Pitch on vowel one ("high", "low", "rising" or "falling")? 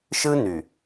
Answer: high